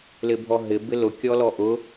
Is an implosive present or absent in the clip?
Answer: absent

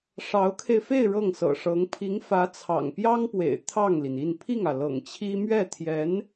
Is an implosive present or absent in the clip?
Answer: absent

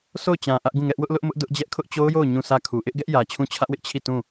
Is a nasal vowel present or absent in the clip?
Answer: present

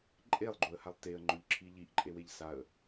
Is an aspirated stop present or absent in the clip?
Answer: present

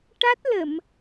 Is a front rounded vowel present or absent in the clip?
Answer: absent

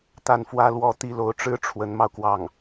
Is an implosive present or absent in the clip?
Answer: absent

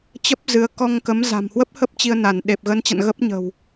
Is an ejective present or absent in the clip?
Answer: absent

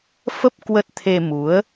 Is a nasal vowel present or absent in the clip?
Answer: absent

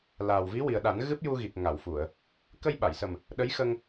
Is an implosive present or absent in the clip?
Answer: present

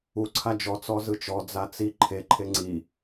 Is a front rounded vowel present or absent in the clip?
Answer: absent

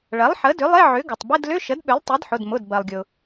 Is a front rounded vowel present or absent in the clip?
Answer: present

